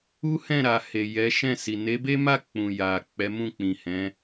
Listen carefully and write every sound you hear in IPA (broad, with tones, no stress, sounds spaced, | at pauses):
u˦ h ɛ̃˦˨ ɾ a˨ h e˨ j ɛ˨˦ ʃ ɛ̃˦˨ s i˨ n e˨˦ b e˦ m a˦˨ k͡p ũ˨ j a˨ k͡p ɛ˨˦ m ũ˦˨ k͡p ĩ˨ h ɛ̃˨˦